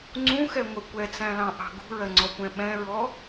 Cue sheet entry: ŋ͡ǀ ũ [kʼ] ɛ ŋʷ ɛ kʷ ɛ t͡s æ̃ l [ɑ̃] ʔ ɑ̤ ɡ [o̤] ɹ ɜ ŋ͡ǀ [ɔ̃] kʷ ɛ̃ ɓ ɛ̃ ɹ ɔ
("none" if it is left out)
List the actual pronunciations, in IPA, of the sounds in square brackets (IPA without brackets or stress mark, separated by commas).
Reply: x, ɑ̃, ṳ, ɔ